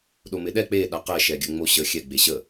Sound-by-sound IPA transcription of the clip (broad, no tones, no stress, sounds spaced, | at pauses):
ɗ o m ɪ ɗ ɛ k͡p e ɗ a q ɛ ʃ ɛ ɡʲ ə ŋ͡m o ɕ ə xʲ ɛ ɡ͡b e ɕ ə